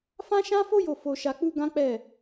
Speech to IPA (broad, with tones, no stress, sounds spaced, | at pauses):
f ã˦ ʃ ã˦ f o˦ j o˦˨ f o˧ ʃ a˧ k͡p u˦ ɡ ã˦ k͡p ɛ˦˨